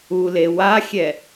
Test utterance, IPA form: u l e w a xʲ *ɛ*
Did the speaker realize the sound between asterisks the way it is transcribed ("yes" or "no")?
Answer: yes